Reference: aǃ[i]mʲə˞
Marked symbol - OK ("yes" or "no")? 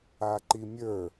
yes